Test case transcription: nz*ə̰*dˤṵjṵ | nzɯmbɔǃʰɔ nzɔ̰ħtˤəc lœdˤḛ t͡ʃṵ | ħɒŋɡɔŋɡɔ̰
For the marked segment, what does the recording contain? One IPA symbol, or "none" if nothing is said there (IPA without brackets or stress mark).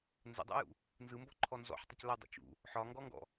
ə̰